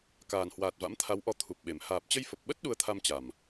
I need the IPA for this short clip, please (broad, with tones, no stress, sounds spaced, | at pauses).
k aː˨˩ n h w aː˨˩ t̚ v a̰˧˥ m t̪ʰ a˨˦ w ʔ ɔ˧ t̪ʰ u˨˩ p̚ ɓ e˨˩ m h aː˨˩ p̚ t͡ɕ ə˧ j f ə˨˩ p̚ ɓ ə˦˥ t̚ ɗ u˧ ə̯ t̪ʰ a˧ m t͡ɕ a˨˩ m